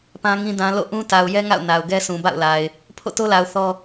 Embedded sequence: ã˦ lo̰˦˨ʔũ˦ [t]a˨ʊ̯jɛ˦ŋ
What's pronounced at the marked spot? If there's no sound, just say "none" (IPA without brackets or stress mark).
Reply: t